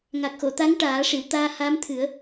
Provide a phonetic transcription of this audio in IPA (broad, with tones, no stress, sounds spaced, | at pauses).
ŋ a˨˩ k̚ x o˨˩˨ t̪ a˧˥ ŋ ʈ aː˨˩˦ ʂ i˨˩˨ w t̪ aː˧ h a˧˥ m t̪ʰ ɨ˨˩˦ ə̯